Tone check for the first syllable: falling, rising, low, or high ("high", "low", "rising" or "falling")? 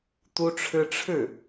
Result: high